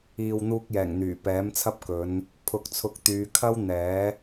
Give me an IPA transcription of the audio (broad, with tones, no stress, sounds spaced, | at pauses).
iː˨ w n̪ uː˧ k̚ j ɛː˨˩ ŋ n̪ yː˨˩ p ɛː˨˥ m t͡sʰ ɐ˥ p̚ k ɵ˨˧ n | pʰ ʊ˨ k̚ t͡sʰ ʊ˨˥ k̚ t̪ yː˨˧ kʰ ɐ˥ w n̪ ɛː˨˥